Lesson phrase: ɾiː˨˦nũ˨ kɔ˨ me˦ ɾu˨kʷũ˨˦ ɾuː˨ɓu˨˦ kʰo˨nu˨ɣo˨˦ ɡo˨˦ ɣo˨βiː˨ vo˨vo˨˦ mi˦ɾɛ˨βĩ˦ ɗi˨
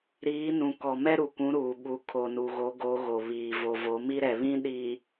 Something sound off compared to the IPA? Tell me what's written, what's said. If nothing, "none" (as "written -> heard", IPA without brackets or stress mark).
e˦ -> ɛ˦